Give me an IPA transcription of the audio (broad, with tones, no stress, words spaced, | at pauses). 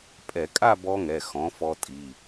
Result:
pʼɛ˧˩˧kʼa˥˧ bɔ˦˥ŋɛ˩˧˩xɔ̃˩˥ fɔ˦˥tʼi˩˧˩